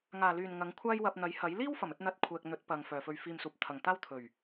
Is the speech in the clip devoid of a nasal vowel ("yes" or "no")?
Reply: yes